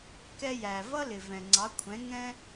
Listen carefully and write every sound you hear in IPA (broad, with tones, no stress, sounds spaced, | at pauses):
k ɛ˧ j æ˩ v ʌ˥ l ɪ˩ v ɛ̃˩ ŋ͡ǀ ɑ˩˥ kʷʰ ɛ̃˩˥ ŋ ɛ̃˥